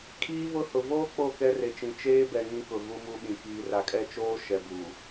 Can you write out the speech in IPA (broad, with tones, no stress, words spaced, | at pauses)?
kʰiː˦vʊ˦hʊ˨ voː˦ k͡po˦˨kɛ˦re˨t͡ʃĩ˨ t͡ʃeː˦bɛ˨ ŋĩ˦kʊ˨ ɣu˦mu˦ɓĩ˨ kiː˨ra˨kʼɛ˦ t͡ʃoː˦ ʃɛ˨bu˨